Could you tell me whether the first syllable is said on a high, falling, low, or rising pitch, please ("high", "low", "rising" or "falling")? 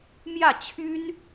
falling